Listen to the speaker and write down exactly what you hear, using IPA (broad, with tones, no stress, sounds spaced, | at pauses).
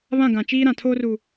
β ã˦˨ ɡ ã˨ t͡ʃ iː˦ ɾ ã˨ tʰ oː˦ r u˨